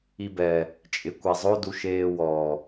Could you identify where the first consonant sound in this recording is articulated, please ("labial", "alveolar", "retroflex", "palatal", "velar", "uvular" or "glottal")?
labial